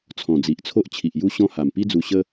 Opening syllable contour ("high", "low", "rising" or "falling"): low